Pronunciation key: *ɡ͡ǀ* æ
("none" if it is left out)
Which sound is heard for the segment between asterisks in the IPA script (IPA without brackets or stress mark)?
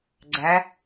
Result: ɡ͡ǀ